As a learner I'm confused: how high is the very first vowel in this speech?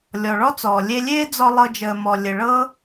mid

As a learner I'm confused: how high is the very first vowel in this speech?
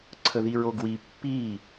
mid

